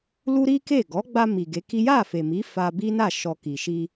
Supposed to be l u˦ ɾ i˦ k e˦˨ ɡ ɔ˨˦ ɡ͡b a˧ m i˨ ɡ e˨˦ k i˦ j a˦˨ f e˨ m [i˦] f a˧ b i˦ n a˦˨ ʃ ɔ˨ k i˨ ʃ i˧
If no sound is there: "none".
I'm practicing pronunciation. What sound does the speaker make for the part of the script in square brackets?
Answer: i˨˦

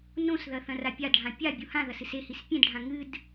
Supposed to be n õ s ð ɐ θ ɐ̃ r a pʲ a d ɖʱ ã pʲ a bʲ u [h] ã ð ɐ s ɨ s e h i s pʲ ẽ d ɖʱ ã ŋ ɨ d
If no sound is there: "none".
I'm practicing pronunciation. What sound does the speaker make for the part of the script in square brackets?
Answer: h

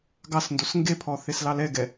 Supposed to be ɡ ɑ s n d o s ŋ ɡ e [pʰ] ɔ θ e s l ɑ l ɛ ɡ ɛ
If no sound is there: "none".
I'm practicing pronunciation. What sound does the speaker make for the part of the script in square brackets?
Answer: pʰ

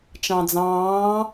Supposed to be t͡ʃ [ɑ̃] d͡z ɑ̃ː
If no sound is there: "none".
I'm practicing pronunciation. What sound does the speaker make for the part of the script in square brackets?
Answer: ɑ̃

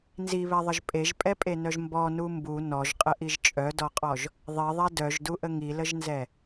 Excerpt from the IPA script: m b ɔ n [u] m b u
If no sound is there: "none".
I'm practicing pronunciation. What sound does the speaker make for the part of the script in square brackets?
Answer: u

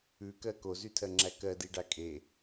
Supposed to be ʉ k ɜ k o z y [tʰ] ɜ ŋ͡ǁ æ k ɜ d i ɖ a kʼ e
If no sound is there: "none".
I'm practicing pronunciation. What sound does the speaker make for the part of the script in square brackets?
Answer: tʰ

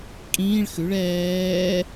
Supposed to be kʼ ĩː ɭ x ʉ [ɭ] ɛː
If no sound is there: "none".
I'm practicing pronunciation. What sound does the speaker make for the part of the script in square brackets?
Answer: ɭ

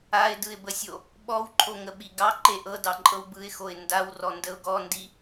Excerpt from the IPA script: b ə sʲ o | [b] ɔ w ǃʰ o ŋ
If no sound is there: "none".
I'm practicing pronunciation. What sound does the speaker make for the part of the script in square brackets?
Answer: ɓ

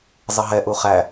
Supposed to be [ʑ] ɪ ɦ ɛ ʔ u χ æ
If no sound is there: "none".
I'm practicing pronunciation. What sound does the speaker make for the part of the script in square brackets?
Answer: zˤ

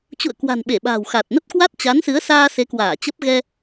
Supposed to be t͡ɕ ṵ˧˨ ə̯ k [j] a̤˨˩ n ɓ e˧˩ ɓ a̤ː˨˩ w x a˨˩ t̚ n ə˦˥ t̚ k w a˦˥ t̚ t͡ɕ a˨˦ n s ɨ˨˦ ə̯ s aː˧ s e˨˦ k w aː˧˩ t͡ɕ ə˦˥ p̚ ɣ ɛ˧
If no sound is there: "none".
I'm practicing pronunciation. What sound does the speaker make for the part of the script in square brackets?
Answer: w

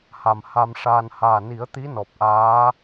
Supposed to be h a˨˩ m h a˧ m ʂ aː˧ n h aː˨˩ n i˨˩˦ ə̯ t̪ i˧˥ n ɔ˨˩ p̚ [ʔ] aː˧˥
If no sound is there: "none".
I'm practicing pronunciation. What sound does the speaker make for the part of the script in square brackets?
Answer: ʔ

